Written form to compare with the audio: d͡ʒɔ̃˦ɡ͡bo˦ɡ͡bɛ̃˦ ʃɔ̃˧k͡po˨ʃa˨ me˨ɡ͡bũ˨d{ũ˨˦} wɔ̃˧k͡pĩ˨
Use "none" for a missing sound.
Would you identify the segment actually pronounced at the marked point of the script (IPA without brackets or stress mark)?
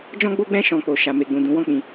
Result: ũ˨˦